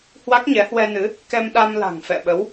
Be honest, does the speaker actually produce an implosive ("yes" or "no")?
yes